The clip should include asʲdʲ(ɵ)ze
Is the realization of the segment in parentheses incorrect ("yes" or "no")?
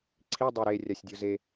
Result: yes